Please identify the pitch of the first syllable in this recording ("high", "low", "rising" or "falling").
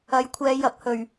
rising